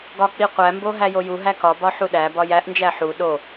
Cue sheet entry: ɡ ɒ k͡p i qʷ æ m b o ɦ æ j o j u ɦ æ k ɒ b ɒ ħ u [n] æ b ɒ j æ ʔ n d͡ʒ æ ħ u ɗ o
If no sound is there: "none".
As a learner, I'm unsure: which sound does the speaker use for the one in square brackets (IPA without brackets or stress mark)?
ɗ